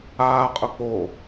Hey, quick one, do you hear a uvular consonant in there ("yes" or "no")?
yes